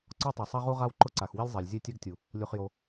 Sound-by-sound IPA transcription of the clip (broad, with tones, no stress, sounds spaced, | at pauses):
ǀ ɔ˥ tˤ ɛ˩ sˤ a˥ ʁ u˥ ʁ a˥ w ǃ ʊ˥ ǀ a˩ x w i˥ lʲ zˤ a˩ lʲ zʲ e˥ tʲ ɛ˥ ɡ tʲ u˩ | lʲ u˩ χ j o˩